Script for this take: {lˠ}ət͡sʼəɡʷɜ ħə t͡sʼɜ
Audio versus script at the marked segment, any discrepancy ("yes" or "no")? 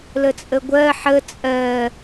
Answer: yes